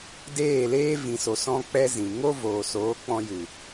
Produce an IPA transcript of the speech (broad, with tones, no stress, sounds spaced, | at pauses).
d eː˦˨ l eː˦ v ĩ˨ s o˨ s ɔ̃˦ k͡p ɛ˦ z ĩ˨ ŋ o˦ v oː˨ s oː˨˦ k͡p ɔ̃˧ j ɨ˨